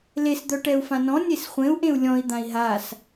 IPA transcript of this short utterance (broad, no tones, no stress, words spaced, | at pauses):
les d̪œʈɛu̯fãnɔ̃ nʲesχʷẽu̯ ʔẽu̯lʲɔ̃i̯ d̪ãi̯ɦas